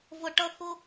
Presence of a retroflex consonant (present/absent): present